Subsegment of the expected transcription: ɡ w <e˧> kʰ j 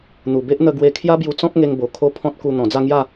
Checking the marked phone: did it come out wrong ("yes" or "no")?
no